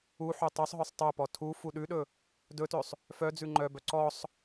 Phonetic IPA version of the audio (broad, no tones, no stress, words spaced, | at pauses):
uħø tˤøsˤɦœsˤ tˤœpɔ tʰu fuɗʉɗɵ | dɵtøsˤ | fœ d͡zʉŋ͡ǃœbœ ǀɔsˤ